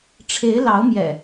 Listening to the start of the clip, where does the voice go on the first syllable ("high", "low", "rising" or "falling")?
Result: rising